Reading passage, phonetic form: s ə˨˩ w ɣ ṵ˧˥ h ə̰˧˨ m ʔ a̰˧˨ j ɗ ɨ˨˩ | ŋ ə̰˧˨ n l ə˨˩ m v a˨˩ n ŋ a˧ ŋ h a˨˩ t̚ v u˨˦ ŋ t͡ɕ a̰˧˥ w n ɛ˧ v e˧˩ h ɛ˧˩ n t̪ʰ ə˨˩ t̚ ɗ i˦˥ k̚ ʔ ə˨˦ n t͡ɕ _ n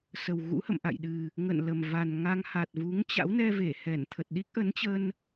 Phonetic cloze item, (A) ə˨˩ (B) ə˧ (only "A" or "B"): B